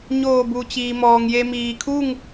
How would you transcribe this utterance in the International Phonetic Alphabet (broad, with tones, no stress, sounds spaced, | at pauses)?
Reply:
ɲ oː˧˩ b u˩ t͡ɕ iː˩ m ɔː˩ ŋ j e˧ m iː˩ kʰ u˥˨ ŋ